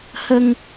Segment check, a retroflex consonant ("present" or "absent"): absent